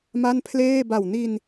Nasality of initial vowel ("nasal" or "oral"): oral